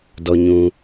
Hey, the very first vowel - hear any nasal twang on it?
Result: no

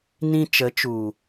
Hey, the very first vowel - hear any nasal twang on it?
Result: yes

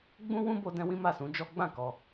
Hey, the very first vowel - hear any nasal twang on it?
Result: yes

